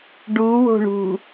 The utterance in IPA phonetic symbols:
ɖ u w o̤ ɳ ṳ

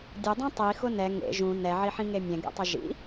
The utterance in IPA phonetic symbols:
dʲ ʊ dˤ ĩ tˤ i x ʊ n ɛ ŋ ḛ ʒ ũ n ɛ ʕ i ħ ĩ ŋ e mʲ ɛ̃ ɡ ɛ̰ tˤ ʊ ʒ ḭ

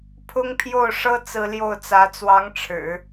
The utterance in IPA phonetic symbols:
pʰ ʊ˥ ŋ pʰ j o˥˩ ʊ̯ ʂ ɤ˥ t͡s ɹ̩˥ l j o˥˩ ʊ̯ t͡s ä˧˥ t͡s w ɑ˧˥ ŋ ʈ͡ʂʰ ɻ̩˨˩˦

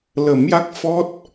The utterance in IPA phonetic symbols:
l ə˨˩˦ m j a˦˥ k̚ f ɔ˦˥ t̚

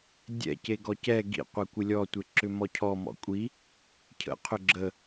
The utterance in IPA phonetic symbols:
dʲ ɛ̰ c e ɡ ɔ c ɛ ɡ ḭ qʷ ɛ kʷ ɪ lʲ ɔ tʷ ɪ ǁ ʏ m ɔ cʰ ɔ m ɔ̰ kʷʼ i | cʰ ə̰ qʰ ʏ ɡ͡ǁ ə

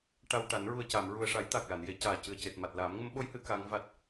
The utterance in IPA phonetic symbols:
ʈ a˧ w ʈ a˨˩˦ n ɹ u˨˩ ə̯ c a˨˩˨ m ɹ u˨˩ ə̯ ʂ a˨˩˦ j t̪ a˨˩ k̚ l a˨˩˨ n j e˨˩˦ c aː˨˩ c ɨ˨˩ ə̯ c e˨˩ t̚ m a˨˩ t̚ l aː˨˩˦ m ŋ ə˧˥ m ɓ o˧˥ j h ɨ˨˩˦ k a˧˥ ŋ v a˦˥ t̚

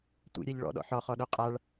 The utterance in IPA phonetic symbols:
tʷ ḭ ɾʲ æ ʎ ɭ ɔ̰ ɗ ɔ̰ ħ ɔ χ ɔ ɗ o qʼ a ɭ

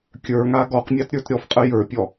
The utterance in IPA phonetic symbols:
kʲ ə˞ ŋ a ɡ ɔ q mʲ a t ɾʲ ə˞ t ɾʲ ɔ f qʼ ə j ə˞ pʲ ɔ

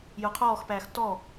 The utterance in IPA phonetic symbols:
j ʊ qʰ ɔː x p æː x t ɔ

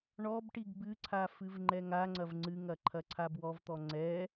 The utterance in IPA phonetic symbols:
ɳ ɔ b ʈ i ɡ b ɨ ǀʰ a f ɨ v ŋ͡ǃ ɛ ŋ a ŋ͡ǀ ɐ v ŋ͡ǀ ɨ ŋ ɐ ǃʰ ɐ ǀʰ a b w ɔ v t̪ ɔ ŋ͡ǀ ɛ

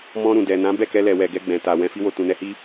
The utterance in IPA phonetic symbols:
m ɔ̃˧ ɾ ũ˨ d ɛ˨ n ã˨˦ b ɛ˦˨ k ɛ˧ l ɛ˨ w ɛ˨ ɡ ɛ˧ ɡ͡b ɛ̃˨ t a˨ w ɛ̃˨ f i˧ w o˨ t ũ˨ n ɛ˧ h i˦

